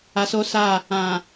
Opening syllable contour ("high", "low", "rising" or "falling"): low